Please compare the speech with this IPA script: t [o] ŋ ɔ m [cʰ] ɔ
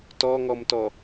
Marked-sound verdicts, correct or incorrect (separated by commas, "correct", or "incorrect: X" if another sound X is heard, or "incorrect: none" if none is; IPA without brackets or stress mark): incorrect: ɔ, incorrect: t